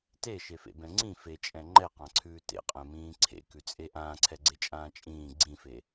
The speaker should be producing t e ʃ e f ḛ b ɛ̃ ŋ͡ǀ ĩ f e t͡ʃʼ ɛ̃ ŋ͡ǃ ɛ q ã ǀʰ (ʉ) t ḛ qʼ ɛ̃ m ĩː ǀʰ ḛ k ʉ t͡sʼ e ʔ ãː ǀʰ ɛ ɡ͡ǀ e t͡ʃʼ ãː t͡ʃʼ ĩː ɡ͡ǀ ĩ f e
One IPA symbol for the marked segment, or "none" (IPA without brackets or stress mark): ʉː